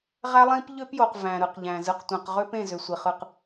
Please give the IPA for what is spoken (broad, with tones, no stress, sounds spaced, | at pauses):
ʁ æ˦ lˠ ĩ˦ p ʎ ø˦ p j o˨ q v æ̃˨ ɾ ɯ˨ q ʎ æ̃˨ z ɯ˨ q tʷ ẽ˨ q ʁ ø˦ p ẽ˦˨ z ø˨ sʷ i˨ χ ɯ˦˨ q